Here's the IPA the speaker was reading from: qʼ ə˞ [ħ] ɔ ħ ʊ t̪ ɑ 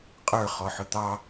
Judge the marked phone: incorrect: χ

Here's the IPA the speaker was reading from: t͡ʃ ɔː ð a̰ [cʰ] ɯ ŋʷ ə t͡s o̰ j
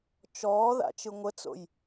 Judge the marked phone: incorrect: t͡ʃ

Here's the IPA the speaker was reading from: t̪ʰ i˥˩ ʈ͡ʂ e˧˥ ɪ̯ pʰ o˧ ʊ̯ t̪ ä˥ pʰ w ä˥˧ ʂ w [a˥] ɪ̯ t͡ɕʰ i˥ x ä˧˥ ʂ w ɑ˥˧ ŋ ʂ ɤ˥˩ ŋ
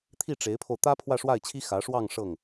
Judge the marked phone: incorrect: a˥˩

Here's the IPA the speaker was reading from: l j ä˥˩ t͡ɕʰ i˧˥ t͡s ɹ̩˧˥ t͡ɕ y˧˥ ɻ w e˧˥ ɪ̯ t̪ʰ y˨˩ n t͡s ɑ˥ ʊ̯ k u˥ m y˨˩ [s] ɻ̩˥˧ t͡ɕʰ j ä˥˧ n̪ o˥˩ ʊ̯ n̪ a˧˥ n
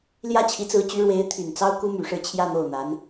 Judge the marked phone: incorrect: ʂ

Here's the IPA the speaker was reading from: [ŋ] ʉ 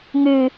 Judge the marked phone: correct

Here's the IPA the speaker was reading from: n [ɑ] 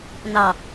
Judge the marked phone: correct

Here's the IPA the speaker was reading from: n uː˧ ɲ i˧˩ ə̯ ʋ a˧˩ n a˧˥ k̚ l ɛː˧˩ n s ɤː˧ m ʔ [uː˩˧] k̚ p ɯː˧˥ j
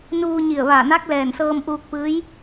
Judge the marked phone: incorrect: uː˧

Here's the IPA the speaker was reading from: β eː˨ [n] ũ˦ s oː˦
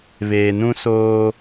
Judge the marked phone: correct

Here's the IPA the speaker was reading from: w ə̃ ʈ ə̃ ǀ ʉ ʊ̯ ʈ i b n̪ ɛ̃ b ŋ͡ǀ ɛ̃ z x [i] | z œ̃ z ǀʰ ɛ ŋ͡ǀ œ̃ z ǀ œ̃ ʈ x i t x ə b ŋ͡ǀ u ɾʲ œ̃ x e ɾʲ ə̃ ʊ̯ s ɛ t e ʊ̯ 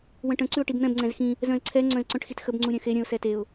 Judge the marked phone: incorrect: ĩ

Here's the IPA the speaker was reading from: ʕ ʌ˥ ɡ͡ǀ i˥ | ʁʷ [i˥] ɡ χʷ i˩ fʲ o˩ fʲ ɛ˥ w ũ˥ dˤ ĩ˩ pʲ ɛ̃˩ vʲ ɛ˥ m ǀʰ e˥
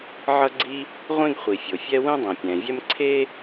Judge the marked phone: incorrect: ĩ˥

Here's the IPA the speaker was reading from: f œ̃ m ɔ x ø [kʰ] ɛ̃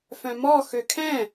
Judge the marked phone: correct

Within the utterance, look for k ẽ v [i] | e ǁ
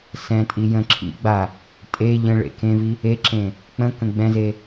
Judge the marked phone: correct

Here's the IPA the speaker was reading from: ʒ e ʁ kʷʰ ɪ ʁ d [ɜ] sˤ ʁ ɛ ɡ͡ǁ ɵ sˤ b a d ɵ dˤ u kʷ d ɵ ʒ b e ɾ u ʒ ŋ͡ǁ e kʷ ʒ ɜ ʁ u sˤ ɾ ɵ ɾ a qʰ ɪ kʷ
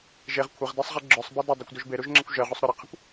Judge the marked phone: correct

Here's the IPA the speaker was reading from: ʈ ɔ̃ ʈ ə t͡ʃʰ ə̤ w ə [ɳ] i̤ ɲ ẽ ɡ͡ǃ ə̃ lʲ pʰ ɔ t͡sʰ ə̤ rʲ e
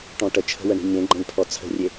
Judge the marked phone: correct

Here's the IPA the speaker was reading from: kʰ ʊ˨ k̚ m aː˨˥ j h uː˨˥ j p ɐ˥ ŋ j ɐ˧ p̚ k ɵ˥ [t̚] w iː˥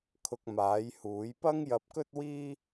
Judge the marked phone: correct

